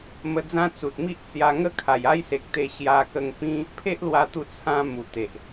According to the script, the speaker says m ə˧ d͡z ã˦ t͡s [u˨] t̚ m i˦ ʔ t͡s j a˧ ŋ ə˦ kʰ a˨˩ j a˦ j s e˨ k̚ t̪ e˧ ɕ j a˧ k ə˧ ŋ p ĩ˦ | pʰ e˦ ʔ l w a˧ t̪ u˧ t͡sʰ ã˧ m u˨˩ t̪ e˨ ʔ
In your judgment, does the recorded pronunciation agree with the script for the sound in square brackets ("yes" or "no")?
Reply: yes